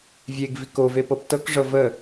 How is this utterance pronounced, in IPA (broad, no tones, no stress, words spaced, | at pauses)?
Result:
vʲeɡ vikove pɤptɤkʐɤ və